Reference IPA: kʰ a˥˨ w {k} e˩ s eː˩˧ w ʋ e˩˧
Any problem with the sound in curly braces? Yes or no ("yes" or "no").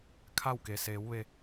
no